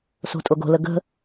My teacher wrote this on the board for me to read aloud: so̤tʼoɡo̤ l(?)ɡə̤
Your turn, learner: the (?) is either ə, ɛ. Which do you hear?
ə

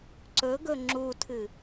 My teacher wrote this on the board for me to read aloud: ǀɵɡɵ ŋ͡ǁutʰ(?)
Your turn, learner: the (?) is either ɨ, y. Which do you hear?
ɨ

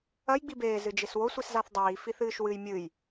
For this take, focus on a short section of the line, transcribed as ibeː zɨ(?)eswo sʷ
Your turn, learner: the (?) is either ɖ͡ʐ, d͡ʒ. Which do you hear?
d͡ʒ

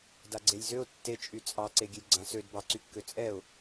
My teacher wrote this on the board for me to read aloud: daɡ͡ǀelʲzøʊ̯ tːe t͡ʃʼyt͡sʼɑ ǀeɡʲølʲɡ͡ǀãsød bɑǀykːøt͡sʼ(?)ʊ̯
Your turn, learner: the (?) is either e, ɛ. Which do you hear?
ɛ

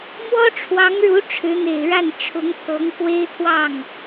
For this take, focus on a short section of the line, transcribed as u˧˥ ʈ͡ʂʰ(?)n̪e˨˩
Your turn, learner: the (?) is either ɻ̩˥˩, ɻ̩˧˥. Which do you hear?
ɻ̩˧˥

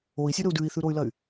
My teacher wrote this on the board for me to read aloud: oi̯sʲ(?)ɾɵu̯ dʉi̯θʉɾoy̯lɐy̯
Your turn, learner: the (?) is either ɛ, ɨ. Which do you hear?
ɨ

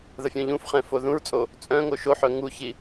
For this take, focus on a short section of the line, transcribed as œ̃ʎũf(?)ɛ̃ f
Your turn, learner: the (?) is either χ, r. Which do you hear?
χ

